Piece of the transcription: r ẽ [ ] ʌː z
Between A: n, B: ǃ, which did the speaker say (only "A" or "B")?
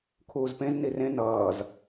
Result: A